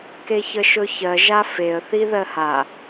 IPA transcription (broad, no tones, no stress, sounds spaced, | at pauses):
k e ç ə ʃ ɵ ç ɜ ʒ a f e ə̯ θ i ð ɜ h a